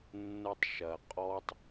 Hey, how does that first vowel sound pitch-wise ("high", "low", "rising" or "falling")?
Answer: falling